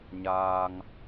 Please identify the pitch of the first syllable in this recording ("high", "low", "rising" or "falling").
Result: low